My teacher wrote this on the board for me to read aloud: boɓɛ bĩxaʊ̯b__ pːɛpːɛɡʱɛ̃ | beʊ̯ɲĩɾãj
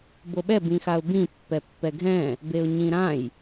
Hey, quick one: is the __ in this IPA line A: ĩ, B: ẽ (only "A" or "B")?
A